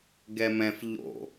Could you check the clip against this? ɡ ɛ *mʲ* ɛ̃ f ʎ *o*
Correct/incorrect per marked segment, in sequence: incorrect, incorrect

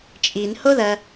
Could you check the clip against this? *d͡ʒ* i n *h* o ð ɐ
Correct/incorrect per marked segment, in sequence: incorrect, correct

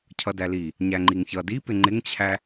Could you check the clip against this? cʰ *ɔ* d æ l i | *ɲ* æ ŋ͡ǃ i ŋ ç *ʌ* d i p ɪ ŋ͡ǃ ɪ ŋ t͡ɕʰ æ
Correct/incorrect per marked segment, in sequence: incorrect, correct, correct

